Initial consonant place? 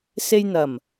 alveolar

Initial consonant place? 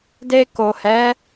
alveolar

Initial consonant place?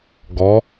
velar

